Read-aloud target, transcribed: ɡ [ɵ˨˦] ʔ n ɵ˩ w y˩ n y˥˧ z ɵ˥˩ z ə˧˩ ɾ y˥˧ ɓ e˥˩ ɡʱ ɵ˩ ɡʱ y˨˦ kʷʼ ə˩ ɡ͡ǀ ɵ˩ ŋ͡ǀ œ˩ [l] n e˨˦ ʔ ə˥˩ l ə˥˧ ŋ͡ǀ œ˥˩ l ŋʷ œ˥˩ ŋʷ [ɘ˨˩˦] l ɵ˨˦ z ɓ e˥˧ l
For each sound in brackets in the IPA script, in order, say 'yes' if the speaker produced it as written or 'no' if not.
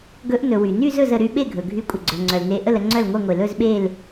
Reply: yes, yes, no

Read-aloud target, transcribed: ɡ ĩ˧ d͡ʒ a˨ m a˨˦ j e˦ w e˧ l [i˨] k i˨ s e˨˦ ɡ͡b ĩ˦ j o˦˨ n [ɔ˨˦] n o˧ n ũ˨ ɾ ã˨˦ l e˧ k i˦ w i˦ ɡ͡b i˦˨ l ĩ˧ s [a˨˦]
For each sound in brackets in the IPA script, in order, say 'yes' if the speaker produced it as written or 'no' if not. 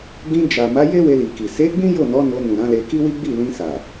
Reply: yes, yes, no

